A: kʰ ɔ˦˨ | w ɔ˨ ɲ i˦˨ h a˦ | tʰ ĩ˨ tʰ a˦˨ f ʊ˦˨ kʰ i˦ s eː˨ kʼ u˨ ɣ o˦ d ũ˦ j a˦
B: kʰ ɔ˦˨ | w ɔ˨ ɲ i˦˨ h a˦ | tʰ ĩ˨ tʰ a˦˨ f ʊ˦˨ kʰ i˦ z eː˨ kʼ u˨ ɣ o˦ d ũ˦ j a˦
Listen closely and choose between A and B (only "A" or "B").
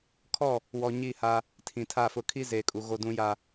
B